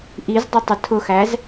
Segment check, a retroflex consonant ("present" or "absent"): absent